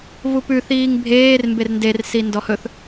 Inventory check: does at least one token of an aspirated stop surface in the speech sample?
no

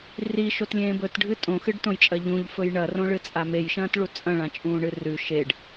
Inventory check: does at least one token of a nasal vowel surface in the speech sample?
yes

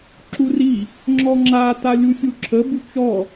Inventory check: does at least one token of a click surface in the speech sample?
yes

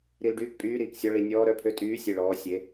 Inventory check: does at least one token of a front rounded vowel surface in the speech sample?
yes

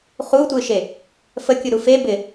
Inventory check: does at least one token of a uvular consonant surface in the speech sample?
yes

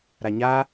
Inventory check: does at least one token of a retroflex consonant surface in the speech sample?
no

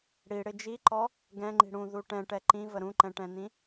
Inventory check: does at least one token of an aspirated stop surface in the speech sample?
no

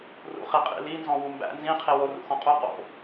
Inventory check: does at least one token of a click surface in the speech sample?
no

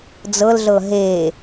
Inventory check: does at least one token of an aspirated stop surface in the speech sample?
no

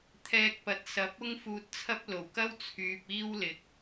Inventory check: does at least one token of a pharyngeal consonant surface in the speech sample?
no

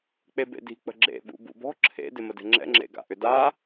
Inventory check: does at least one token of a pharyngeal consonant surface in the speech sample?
no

